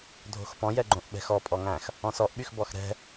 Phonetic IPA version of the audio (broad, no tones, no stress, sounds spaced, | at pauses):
dʱ o̤ x p ɔ̃ j ɛ ɡ͡ǃ õ ʔ ɓ ɛ̤ x ɔ pʼ ɔ ŋ æ̃ x | ɔ̃ s ɔ ʔ ɓ y x b ɔ x ɾ ɛ̤